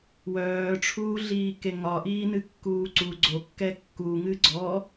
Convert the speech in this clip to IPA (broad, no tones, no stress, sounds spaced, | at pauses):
w œː ʈ͡ʂʰ uː ɮ iː k e ŋ ɒ ʔ iː n ɨ kː uː ǀ u ɡ͡ǀ o kː ɛ kː u ŋ ɨ ɡ͡ǀ ɔ